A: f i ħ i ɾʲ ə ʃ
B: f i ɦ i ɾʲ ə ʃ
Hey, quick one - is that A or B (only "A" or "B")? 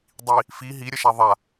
B